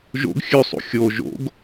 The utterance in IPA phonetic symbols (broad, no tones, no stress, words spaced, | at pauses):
ʒo̰ɡ xʲʉsˤṵ xʲo ʒo̰ɡ